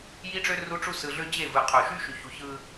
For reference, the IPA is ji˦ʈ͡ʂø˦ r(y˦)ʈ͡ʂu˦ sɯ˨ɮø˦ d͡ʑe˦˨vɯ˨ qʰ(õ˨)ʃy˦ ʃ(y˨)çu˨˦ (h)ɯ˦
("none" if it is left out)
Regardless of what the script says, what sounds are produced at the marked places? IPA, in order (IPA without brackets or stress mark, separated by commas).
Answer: u˦, o˨, y˨, ç